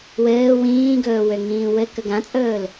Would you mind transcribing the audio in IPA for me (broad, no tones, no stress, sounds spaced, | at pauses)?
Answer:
w ɘː w ĩː ɡ ɵː w ø ŋ ĩː w ɘ k ə ɡ ã t͡sʼ ɵː l